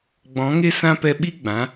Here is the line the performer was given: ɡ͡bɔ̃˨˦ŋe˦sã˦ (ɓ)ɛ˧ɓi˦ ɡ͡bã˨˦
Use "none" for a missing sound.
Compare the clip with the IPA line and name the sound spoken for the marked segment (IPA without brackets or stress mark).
p